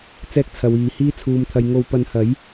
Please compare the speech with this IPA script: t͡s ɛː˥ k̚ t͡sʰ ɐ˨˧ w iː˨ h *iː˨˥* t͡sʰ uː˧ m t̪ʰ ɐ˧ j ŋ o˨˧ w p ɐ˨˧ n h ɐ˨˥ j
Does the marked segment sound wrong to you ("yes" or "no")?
yes